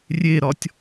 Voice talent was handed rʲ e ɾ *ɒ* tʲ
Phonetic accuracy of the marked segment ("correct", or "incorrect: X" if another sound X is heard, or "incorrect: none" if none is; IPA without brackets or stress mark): correct